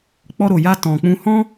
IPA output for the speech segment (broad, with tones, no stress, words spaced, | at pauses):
k͡pɔ˧ɾo˨ja˧ tɔ̃˨k͡pũ˧ hɔ̃˦